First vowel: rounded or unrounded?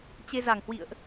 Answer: unrounded